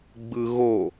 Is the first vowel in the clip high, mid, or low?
high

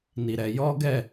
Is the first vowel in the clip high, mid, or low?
high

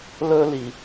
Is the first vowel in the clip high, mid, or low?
mid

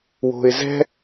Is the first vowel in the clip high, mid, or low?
mid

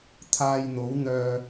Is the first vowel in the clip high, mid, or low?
low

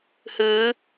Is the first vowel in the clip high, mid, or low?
high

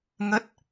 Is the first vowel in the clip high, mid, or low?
mid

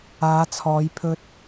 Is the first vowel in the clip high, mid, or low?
low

